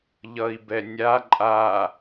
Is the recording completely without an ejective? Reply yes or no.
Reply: no